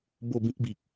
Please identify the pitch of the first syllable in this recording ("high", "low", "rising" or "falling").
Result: falling